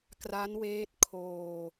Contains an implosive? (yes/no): no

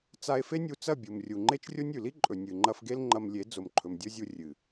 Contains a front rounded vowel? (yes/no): no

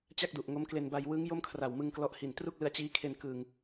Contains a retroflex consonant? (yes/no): no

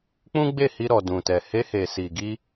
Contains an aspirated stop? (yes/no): no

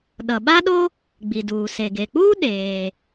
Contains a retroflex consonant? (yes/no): no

